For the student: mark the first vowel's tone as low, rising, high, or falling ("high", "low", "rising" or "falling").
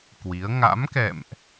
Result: rising